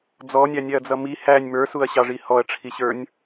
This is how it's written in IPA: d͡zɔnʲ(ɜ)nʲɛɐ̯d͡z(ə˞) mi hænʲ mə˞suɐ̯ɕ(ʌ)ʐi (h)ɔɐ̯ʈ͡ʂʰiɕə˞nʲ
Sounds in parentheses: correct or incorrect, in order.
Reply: incorrect, incorrect, incorrect, correct

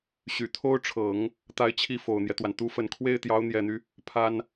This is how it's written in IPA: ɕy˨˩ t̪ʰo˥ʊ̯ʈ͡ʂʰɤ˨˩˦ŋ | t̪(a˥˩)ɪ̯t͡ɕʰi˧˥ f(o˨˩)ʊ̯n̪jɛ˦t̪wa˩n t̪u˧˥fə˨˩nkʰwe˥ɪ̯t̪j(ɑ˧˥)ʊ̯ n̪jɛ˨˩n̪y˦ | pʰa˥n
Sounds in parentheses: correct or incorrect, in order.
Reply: incorrect, correct, correct

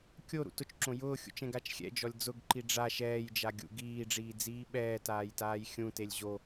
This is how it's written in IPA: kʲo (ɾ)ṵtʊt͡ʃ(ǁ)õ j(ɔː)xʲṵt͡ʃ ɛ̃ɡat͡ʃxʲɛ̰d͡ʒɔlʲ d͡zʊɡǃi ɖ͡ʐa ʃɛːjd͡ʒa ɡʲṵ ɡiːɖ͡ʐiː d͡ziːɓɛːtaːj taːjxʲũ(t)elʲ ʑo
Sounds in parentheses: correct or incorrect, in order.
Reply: correct, correct, incorrect, correct

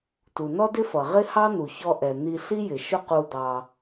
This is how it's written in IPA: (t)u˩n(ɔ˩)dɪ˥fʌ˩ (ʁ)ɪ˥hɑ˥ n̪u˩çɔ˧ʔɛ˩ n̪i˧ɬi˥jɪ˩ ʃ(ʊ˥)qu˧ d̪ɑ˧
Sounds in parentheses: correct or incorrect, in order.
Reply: correct, incorrect, correct, correct

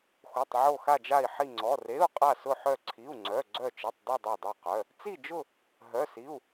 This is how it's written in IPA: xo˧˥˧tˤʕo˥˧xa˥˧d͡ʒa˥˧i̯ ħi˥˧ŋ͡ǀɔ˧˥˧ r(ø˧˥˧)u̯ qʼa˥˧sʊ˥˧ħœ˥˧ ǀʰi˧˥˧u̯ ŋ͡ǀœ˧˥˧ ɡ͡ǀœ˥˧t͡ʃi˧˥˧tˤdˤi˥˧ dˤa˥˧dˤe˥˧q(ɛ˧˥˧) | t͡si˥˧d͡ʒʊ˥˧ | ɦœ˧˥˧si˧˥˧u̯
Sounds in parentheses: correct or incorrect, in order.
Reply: incorrect, incorrect

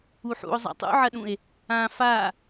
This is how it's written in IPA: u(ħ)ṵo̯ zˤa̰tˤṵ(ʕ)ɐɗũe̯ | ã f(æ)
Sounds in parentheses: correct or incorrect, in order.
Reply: correct, correct, incorrect

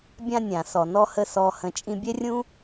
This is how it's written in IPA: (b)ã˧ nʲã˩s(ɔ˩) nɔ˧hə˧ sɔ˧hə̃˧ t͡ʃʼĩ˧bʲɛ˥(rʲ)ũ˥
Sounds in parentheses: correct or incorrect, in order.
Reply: incorrect, correct, correct

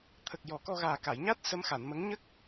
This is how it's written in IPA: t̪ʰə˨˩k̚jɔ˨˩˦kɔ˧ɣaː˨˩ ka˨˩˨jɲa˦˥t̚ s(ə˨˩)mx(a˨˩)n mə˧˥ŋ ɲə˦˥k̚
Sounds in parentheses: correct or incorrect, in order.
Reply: incorrect, incorrect

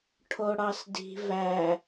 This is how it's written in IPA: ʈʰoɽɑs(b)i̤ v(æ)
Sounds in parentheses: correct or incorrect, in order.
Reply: incorrect, correct

